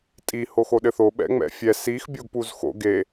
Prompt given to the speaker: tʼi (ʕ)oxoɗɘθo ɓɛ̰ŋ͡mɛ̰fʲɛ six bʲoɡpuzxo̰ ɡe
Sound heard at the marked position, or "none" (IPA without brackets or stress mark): h